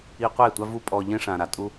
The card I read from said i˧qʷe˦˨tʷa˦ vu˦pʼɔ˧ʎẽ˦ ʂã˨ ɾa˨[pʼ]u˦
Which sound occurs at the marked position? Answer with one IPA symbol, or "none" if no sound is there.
tʼ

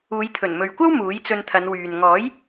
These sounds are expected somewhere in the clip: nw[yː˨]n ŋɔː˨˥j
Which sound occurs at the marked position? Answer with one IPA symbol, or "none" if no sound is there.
yː˨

